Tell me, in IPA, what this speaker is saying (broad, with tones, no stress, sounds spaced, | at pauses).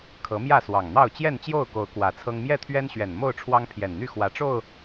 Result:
kʰ ɤ˨˦ m j ä˥˨ s w ɑ˨˩ ŋ n̪ ɑ˥˨ ʊ̯ t͡ɕ j ɛ˥˨ n t͡ɕ j o˥˨ ʊ̯ k o˨˦ ʊ̯ k w ä˨˩ t͡sʰ ɤ˦ ŋ m j ɛ˥˨ t̪ʰ ɥ ɛ˦ n ɕ ɥ ɛ˨˩ n m o˥˨ ʊ̯ ʈ͡ʂʰ w ɑ˦ ŋ pʰ j ɛ˨˩ n n̪ y˥˨ x w ä˨˦ ʈ͡ʂ o˥˨ ʊ̯